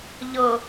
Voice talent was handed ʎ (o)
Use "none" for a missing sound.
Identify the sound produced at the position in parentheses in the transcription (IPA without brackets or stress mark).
ɤ